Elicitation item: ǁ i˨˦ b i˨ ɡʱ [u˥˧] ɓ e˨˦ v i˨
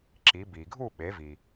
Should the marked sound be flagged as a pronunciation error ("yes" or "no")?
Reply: no